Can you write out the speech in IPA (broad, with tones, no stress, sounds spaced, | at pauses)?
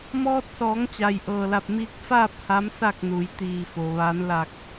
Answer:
m ɔː˧ t̚ s ɔː˩˧ ŋ t͡ɕ a˩ j ʔ ɤː˧˩ l a˧˩ p̚ m iː˧ k̚ f aː˥˨ p̚ h a˧˥ m s a˥˨ k̚ n uː˩˧ j t̪ iː˧˩ f o˩ ʋ a˩˧ n l a˧˩ k̚